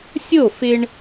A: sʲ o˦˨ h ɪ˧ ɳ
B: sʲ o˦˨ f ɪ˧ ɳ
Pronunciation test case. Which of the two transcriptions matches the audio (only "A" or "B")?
B